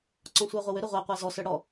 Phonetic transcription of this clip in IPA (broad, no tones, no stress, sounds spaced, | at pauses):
ǀ ɔ̃ sʷ ə˞ ʁʷ ə w ʏ ɾ ə ʁʷ æ qʷ æ z ɔ s ə˞ ɽ ɔ